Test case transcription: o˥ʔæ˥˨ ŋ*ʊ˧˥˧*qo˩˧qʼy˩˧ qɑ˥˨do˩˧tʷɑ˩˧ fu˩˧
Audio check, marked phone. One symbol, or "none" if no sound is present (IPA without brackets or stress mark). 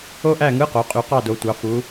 ɯ˧˥˧